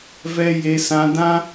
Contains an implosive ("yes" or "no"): no